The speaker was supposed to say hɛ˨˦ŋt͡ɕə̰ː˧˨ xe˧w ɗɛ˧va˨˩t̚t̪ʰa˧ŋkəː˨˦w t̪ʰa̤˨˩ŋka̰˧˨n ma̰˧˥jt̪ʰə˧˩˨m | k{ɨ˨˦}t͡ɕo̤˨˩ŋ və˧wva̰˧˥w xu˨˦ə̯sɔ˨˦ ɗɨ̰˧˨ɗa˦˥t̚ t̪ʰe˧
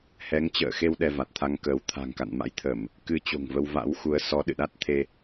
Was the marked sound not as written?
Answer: no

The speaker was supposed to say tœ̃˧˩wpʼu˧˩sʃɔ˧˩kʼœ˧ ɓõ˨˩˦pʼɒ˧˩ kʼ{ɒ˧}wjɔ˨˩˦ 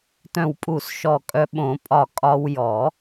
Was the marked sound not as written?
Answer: no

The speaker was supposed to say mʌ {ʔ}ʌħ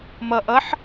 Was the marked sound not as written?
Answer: no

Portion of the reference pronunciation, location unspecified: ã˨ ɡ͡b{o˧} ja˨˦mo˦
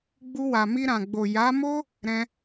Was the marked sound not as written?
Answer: yes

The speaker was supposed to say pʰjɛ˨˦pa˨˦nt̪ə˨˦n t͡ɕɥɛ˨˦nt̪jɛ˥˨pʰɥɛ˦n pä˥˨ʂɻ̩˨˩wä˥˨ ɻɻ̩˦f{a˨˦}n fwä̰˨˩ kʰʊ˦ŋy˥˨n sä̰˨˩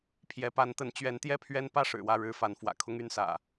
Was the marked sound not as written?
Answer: no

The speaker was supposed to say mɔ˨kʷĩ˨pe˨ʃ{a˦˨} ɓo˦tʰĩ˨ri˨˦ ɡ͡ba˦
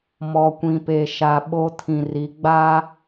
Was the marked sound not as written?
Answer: yes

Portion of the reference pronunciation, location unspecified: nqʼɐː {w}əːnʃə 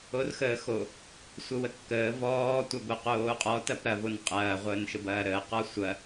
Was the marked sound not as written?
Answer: yes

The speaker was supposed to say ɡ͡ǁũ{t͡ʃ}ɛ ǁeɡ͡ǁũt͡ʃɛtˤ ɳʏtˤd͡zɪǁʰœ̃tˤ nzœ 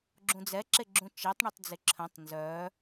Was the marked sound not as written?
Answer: yes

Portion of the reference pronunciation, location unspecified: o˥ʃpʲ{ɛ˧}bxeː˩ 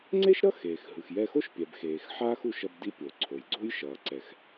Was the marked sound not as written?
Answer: yes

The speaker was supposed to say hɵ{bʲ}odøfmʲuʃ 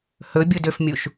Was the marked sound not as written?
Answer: no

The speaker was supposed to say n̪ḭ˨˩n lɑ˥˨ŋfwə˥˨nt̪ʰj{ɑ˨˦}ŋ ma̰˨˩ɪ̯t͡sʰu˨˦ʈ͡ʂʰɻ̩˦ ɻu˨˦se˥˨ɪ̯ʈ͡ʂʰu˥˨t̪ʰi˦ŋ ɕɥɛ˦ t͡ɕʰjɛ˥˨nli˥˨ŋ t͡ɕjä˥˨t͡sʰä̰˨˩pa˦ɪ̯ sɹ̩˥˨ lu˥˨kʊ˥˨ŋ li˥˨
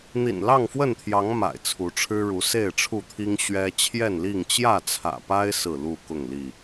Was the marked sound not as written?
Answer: no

